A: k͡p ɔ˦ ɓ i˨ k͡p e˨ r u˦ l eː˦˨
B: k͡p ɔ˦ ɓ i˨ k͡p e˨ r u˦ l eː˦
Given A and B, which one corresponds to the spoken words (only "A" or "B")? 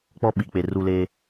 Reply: B